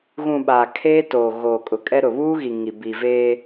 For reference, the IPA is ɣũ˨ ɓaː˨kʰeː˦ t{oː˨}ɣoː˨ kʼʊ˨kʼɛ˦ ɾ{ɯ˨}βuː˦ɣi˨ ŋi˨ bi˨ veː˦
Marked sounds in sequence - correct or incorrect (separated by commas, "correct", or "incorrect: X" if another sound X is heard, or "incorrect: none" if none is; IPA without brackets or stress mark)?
correct, incorrect: ʊ˨